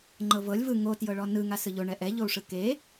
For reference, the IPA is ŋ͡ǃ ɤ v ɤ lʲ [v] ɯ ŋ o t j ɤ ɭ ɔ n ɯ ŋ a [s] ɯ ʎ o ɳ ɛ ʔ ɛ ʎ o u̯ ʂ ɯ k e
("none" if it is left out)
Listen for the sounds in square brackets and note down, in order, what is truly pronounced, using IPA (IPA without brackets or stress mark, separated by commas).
v, s